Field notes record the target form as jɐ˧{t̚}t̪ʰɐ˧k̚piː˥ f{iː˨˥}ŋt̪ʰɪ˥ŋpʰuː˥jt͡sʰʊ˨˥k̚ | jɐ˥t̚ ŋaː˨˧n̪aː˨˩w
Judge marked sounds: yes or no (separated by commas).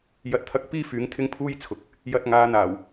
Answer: yes, no